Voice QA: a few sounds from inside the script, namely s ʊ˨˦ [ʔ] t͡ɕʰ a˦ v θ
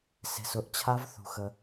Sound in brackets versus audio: correct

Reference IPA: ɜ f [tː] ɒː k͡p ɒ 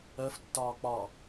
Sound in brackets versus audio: correct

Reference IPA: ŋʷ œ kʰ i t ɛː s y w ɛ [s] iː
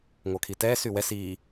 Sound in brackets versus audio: correct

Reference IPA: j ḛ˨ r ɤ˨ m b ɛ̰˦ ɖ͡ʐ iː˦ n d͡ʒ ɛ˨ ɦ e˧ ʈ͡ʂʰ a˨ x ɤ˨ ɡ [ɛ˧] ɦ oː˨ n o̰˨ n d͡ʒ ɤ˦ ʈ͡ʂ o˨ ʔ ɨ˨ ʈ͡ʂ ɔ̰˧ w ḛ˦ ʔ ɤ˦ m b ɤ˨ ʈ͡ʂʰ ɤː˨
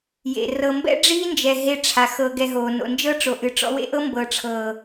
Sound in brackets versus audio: correct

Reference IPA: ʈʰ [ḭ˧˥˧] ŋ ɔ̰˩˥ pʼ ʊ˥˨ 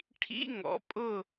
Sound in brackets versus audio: correct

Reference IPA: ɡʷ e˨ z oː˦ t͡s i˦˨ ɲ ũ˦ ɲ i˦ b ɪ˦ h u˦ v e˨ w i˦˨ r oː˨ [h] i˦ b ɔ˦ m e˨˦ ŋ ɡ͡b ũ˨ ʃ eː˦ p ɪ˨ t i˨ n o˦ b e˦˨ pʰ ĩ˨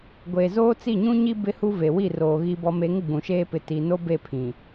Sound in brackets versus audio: incorrect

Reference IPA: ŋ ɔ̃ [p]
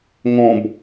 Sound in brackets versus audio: incorrect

